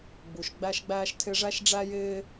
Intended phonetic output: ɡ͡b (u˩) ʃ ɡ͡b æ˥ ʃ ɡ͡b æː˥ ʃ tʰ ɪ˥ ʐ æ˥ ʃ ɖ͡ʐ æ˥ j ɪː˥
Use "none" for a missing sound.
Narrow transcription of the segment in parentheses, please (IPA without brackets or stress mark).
u˩